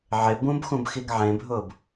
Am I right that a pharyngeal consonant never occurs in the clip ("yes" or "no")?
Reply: no